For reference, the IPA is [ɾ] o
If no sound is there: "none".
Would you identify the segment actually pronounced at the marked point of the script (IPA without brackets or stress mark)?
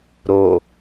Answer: ɾ